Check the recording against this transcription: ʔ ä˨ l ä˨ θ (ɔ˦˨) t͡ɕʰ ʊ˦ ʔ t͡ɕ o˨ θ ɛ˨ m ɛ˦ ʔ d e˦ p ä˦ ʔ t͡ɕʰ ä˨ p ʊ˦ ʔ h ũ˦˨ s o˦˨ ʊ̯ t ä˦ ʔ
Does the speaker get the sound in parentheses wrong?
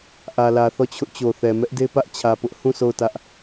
no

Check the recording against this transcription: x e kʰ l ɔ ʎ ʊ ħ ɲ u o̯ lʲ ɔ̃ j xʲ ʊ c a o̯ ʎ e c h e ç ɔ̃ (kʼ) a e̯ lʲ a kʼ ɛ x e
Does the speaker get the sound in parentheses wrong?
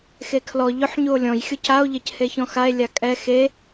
yes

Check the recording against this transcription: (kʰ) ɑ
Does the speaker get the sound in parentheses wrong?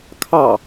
no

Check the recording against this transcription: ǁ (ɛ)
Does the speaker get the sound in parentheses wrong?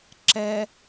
no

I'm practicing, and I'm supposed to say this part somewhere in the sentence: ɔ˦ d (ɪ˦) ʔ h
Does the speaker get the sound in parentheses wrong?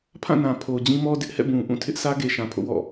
no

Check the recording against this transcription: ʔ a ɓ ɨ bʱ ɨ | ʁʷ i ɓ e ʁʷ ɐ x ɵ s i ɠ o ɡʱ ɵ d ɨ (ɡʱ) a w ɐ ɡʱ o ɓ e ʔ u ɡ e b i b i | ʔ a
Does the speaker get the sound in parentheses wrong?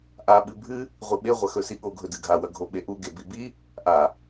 no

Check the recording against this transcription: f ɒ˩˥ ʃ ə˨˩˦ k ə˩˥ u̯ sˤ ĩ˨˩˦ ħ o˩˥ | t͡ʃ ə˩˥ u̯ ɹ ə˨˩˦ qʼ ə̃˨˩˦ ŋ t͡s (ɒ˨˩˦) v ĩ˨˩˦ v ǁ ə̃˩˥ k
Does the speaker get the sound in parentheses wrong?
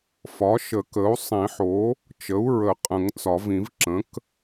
no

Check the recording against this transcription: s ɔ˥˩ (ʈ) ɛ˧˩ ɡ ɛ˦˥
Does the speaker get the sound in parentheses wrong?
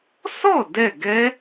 yes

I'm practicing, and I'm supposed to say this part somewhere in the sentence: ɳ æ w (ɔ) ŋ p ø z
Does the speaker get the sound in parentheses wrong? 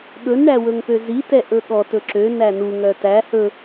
yes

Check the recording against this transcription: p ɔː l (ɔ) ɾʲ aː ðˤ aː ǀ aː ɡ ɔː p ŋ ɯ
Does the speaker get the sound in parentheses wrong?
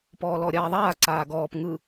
no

